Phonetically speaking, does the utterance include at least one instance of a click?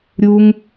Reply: no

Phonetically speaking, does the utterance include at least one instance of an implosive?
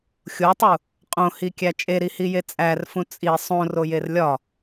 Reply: no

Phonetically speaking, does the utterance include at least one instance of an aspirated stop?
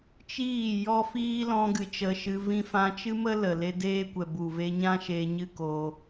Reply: no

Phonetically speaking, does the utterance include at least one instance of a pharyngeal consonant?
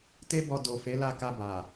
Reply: no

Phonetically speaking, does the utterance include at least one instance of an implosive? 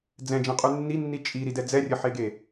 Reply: no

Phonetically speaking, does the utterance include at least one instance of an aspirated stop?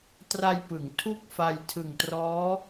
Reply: yes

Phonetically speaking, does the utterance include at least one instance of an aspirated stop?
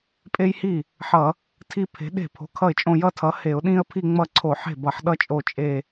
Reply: yes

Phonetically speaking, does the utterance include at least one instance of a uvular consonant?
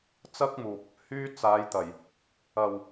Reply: no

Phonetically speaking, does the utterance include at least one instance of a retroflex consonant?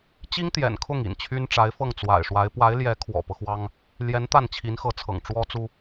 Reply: yes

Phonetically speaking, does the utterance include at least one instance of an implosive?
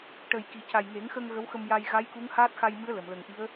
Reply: no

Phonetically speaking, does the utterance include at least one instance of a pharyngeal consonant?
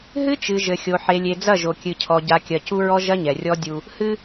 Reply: yes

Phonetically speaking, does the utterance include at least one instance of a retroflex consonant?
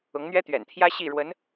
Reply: yes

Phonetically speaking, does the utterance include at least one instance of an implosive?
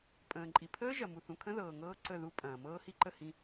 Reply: no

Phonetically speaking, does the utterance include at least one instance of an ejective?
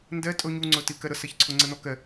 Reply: yes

